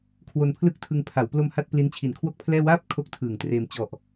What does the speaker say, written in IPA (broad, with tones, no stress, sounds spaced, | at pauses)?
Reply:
kʰ w o˧ n pʰ l ɯ˥˩ k̚ tʰ ɯ˧ ŋ pʰ a˩˦ w p l o˧ m h a˥˩ t̚ p l i˦˥ n t͡ɕʰ i˨˩ n kʰ w o˥˩ k̚ pʰ l ɛː˥˩ w aː˦˥ p̚ kʰ o˥˩ k̚ tʰ ɯː˨˩ ŋ t r eː˧ m t͡ɕ ɔ˨˩ ʔ